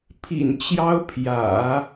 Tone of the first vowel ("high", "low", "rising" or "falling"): low